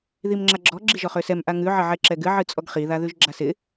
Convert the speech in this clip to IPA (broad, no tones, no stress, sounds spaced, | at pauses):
ð i m ŋ͡ǁ a ɡ͡ǁ ɔ ɡ͡ǁ i ʒ ɔ χ ø s ɛ m ʔ a ŋ ʉ ʕ ə ʕ ɛ ǁ ɛ ɡ ɨ ʕ ɨ t͡sʼ ɔ ɡ χ i ð a ð ʉ ʒ ɡ͡ǁ a s ɪ